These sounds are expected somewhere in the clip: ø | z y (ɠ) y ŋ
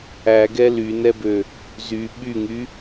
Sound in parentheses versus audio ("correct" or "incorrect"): incorrect